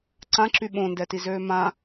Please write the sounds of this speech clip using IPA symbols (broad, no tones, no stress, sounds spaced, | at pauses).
ǀ ã ǁ y ɓ õ n d ɛ t i z øː m ã